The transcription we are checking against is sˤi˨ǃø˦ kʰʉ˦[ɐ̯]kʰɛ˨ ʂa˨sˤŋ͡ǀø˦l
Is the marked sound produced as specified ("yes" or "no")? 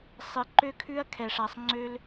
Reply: yes